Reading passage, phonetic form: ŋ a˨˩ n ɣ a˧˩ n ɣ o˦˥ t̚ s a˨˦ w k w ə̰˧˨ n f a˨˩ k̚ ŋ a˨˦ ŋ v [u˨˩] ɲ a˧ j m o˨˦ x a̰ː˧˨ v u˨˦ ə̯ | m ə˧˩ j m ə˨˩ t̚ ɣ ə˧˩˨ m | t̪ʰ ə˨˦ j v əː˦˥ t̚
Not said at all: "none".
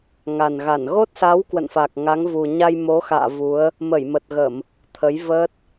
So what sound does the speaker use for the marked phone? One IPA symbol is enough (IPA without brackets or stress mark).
u˨˩